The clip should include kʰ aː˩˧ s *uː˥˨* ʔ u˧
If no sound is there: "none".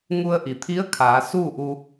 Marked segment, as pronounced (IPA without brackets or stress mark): uː˥˨